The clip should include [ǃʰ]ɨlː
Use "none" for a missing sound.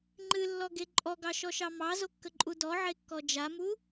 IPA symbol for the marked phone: ŋ͡ǃ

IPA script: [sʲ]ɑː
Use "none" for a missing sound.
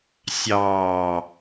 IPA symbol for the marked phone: sʲ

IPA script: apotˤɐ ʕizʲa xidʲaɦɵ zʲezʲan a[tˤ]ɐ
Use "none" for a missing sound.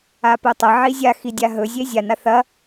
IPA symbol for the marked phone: θ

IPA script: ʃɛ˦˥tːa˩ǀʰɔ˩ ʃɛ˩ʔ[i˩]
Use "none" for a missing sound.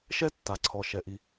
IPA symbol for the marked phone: i˩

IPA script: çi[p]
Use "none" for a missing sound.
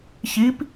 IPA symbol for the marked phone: p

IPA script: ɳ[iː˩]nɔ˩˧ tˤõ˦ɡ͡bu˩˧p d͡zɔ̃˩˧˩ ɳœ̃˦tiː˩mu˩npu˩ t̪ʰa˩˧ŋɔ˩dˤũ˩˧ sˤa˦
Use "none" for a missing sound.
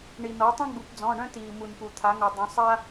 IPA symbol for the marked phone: i˩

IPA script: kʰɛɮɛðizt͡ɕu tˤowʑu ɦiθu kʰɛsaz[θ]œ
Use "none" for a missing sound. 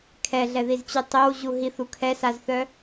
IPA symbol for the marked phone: θ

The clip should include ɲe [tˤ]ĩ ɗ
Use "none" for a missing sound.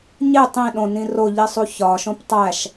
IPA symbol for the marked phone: tˤ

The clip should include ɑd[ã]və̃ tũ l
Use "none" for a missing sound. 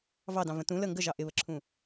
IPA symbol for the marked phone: ɑ̃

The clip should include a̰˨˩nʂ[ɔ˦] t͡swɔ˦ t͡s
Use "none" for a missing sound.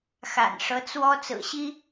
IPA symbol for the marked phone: ɤ˦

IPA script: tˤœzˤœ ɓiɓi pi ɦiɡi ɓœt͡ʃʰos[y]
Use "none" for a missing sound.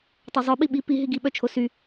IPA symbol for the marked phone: y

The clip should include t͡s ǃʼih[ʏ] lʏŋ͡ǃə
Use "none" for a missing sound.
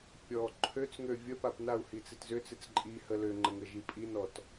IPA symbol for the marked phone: ə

